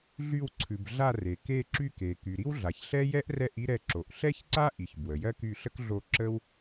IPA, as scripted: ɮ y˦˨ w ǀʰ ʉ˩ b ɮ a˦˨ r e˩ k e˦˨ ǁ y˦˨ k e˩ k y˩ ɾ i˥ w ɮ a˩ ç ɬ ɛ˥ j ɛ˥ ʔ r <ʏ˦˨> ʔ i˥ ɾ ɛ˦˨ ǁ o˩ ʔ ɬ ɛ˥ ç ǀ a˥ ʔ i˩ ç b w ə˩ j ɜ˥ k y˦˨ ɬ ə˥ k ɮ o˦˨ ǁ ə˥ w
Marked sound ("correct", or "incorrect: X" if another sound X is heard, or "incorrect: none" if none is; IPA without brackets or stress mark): incorrect: ɛ˦˨